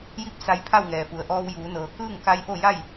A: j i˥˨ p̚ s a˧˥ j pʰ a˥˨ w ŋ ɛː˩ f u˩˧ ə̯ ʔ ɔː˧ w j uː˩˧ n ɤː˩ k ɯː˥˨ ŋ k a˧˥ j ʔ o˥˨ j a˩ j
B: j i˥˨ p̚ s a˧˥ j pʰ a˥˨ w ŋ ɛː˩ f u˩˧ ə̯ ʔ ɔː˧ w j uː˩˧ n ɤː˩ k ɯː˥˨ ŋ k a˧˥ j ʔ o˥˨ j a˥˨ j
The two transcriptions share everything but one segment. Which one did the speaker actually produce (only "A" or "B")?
B